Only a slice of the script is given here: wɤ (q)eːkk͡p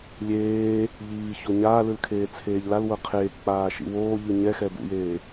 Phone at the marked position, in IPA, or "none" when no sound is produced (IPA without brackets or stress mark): qʰ